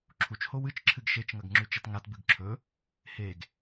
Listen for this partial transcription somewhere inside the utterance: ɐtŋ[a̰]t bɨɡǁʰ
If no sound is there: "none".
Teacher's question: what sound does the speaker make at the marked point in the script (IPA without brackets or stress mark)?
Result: a